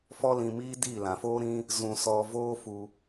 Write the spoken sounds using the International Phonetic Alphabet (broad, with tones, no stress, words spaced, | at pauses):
fɔ˦lĩ˧miː˦ diː˦˨lã˨foː˦ ɾĩ˦ | zũ˧ sɔ˧voː˦fu˧